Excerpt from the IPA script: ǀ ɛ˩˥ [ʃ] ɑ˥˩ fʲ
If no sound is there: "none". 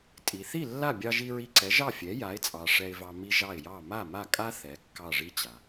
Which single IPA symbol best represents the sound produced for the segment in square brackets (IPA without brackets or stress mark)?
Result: ʒ